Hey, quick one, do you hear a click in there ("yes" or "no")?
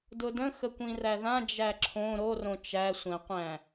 yes